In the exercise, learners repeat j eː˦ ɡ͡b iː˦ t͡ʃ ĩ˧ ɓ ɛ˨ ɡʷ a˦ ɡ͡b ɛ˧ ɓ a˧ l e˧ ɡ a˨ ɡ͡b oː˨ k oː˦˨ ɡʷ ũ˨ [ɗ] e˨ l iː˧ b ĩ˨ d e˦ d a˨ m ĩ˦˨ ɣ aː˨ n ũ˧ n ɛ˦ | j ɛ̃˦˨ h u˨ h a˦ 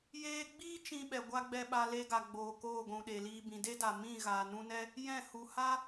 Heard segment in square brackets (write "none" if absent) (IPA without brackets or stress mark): ɗ